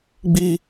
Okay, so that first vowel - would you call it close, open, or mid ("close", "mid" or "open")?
close